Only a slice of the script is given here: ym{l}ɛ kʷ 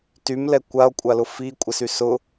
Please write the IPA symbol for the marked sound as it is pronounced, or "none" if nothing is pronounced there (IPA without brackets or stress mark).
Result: l